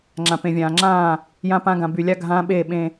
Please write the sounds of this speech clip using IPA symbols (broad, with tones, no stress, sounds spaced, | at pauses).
ŋ͡ǁ ã˨ p ẽ˨ vʲ ãː˨ ŋ͡ǁ ãː˦˨ | j ã˦ p ã˦ ɡ ã˨ b y˨ lʲ a˦ ɡʱ ãː˦ ɓ eː˦˨ ɓ ẽ˦